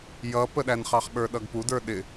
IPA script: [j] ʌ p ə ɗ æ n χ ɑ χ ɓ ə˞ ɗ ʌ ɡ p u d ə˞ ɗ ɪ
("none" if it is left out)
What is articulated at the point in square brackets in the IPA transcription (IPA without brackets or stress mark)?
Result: j